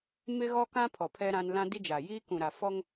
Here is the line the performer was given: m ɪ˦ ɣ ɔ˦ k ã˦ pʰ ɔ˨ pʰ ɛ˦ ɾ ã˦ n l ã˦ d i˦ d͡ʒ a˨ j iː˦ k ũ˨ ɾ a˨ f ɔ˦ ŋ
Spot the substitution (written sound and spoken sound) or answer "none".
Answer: none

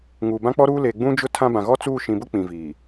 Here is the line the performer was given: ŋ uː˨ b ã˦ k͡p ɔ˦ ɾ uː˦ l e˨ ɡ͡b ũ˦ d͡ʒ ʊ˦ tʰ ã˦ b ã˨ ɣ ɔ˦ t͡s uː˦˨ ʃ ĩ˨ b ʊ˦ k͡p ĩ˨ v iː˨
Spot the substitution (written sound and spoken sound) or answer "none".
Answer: none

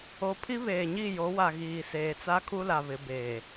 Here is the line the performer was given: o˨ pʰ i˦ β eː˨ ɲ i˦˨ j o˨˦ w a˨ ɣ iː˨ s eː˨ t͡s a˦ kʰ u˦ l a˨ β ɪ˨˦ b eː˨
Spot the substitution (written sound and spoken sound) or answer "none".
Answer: none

